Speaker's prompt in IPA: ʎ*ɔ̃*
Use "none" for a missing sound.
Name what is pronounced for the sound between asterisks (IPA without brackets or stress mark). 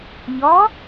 ɔ